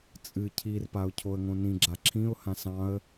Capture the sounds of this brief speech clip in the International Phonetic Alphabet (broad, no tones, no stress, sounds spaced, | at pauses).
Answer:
t͡sʼ ɨ cʰ i r p a ʊ̯ cʰ o ə̯ ŋ õ n ĩ ɡ͡ǁ a ǁʰ ĩ ʊ̯ h ã s ɑ̃ ə̯